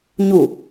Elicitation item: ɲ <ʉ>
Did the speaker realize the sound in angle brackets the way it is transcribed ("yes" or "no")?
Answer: no